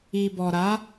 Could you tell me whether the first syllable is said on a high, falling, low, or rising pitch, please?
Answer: low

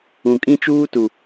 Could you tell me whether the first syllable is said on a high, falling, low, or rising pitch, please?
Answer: low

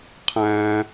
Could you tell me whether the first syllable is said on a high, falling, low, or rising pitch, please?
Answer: low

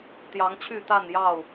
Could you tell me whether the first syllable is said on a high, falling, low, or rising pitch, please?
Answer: rising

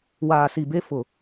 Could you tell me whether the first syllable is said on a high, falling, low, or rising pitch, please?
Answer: low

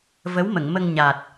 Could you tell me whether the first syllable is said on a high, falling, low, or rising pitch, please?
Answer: rising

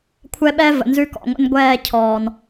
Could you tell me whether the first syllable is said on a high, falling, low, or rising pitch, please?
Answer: high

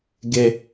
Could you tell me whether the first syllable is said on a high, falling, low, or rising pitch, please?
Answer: high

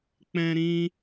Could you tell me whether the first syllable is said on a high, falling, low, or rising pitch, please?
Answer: high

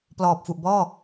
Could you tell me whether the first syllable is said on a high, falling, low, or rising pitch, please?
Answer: low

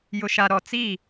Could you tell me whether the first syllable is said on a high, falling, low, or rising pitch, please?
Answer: low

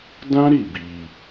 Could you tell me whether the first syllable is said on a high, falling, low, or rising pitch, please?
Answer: high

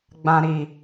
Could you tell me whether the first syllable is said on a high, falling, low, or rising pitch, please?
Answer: low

